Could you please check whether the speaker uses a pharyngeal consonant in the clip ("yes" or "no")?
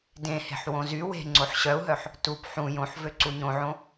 yes